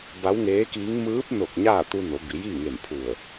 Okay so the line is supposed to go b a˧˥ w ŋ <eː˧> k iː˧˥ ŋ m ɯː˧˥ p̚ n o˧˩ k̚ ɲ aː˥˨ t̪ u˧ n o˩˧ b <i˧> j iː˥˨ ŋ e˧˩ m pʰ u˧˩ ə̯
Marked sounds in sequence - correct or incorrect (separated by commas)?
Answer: incorrect, incorrect